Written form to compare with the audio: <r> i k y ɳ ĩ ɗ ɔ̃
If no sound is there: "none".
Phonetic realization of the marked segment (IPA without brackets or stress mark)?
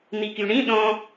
n̪